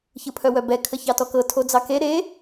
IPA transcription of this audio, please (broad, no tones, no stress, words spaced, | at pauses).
çɯpʰœwœbɛ kʰəçɑtɔkɤ tʰod͡zɑke ɾe